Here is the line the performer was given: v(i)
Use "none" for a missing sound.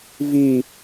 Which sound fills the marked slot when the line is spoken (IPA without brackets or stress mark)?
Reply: i